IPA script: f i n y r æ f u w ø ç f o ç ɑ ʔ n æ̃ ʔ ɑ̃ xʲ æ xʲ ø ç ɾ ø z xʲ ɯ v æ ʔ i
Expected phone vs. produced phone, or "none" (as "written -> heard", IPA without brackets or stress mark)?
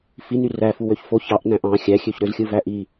none